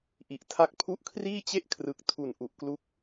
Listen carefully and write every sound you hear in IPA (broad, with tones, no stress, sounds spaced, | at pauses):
ʔ i˨˩ ʔ tʰ a˦˥ k̚ pʰ u˥˩ ʔ kʰ r iː˥˩ t͡ɕ e˥˩ ʔ kʰ r ɯ˨˩ k̚ tʰ u˨˩ n ʔ u˨˩ ʔ k l u˦˥ k̚